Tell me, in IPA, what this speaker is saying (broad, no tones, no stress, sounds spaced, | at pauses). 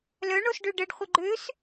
l œ ɳ o s ɖ ø ɖ ə ɖ χʷ ə ɡ͡ǃ ø s